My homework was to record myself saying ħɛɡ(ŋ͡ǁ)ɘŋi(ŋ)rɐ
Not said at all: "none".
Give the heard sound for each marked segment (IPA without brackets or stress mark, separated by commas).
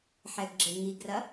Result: ɡ͡ǁ, ɡ